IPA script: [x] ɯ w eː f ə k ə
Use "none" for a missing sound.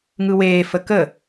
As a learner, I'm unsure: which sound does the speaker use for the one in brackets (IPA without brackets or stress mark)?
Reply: ŋ